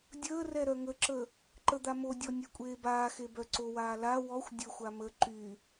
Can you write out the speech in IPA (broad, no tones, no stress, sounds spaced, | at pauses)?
dʲ əː r ɛ ɾ œ ŋ ə ǁ ə | ǃ ə d̪ a m o dʲ ɔ nʲ ɛ kʷʼ eː b aː x e b œ ǀ o w aː l a w ɔ xʷ dʲ ə xʷ a m ə ǃ y